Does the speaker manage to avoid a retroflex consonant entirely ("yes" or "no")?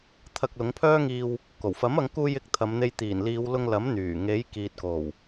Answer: yes